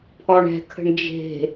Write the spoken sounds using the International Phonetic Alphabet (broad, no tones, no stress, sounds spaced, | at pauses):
pʰ ɔ ɳ ɛ̤ kʰ ə̤ ɳ d͡ʒ e̤